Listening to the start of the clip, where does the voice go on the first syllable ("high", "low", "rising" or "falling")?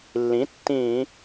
rising